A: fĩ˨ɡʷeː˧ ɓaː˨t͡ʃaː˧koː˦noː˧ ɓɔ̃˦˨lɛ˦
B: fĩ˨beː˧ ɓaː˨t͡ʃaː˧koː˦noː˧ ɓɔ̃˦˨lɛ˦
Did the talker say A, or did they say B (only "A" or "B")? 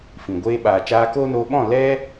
A